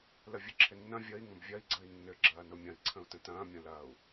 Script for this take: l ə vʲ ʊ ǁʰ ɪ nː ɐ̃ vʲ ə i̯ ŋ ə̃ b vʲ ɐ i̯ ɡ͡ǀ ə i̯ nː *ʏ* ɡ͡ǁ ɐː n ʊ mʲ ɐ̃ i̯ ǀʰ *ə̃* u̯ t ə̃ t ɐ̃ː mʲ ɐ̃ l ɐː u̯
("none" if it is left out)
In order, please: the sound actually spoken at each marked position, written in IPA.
ʏ, ə̃

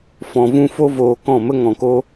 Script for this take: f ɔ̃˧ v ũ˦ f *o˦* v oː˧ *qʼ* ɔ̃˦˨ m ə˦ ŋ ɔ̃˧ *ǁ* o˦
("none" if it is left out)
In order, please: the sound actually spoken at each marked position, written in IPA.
o˦, k, k

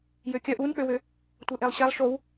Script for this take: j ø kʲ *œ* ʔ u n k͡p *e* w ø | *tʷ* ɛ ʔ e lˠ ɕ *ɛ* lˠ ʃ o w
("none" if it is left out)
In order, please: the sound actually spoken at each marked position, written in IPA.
œ, ø, tʷ, ɛ

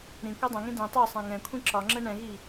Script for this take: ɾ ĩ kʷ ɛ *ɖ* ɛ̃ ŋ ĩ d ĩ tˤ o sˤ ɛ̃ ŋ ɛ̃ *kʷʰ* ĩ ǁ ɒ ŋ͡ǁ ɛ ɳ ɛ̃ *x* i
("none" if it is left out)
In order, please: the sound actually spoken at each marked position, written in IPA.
dˤ, kʷʰ, ɣ

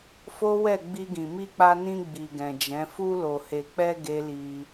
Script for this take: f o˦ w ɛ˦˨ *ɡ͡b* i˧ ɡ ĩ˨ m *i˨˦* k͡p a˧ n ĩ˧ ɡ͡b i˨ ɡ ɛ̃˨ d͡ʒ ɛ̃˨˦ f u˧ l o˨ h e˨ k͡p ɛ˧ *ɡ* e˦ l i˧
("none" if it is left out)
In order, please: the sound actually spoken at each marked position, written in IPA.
ɡ͡b, i˧, ɡ

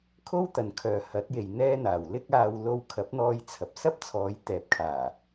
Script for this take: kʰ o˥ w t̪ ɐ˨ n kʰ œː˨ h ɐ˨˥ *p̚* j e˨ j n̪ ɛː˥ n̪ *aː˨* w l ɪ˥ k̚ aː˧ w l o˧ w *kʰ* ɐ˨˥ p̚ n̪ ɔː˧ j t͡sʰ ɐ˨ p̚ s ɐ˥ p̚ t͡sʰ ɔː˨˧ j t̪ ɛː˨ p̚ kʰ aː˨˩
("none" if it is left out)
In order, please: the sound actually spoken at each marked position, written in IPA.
t̚, aː˨, kʰ

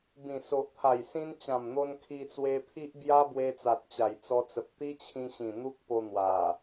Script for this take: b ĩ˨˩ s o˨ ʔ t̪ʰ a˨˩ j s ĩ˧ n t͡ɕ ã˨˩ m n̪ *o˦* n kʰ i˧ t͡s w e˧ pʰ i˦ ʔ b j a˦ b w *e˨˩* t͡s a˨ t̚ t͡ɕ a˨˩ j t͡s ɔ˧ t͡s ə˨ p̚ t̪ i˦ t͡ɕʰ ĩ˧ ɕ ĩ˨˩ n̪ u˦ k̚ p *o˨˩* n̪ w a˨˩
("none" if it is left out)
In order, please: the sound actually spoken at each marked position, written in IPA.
o˧, e˧, o˧

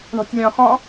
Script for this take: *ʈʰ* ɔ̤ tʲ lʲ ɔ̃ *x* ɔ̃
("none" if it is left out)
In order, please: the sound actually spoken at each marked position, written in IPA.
ɳ, x

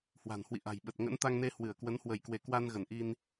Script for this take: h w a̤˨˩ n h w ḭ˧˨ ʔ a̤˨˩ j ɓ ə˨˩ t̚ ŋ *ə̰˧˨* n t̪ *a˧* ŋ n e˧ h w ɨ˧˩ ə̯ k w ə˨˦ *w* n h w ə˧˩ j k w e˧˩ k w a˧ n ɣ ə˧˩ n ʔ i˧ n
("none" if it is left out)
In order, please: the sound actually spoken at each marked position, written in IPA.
ə̰˧˥, a˧, none

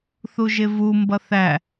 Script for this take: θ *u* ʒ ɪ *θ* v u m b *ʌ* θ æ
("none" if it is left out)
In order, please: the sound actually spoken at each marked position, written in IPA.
u, none, ʌ

